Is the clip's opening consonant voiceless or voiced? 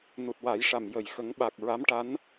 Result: voiced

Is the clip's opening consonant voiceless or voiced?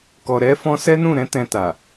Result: voiceless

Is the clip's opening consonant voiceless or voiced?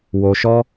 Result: voiced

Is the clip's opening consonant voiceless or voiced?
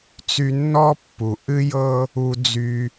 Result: voiceless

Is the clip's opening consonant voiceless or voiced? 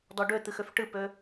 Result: voiced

